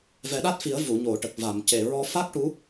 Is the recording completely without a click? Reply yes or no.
yes